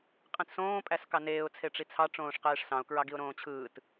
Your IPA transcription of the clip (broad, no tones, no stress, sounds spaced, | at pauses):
qʼ ĩ t s õː pʼ æ s k ɑ n eː ʊ̯ t͡sʰ e ʈ͡ʂ i t͡sʰ ɑ ʈ͡ʂ õː ʂ q eː ʂ s ɑ̃ ʊ̯ k ɹ ɑ ɡ i ʊ̯ ɾ õː t͡ɕʰ ɯː t